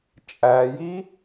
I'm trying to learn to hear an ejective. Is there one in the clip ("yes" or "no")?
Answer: yes